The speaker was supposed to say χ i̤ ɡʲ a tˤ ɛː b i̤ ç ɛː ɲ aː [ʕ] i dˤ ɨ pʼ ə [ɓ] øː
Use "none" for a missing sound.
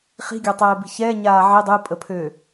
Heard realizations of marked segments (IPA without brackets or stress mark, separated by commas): ʕ, pʰ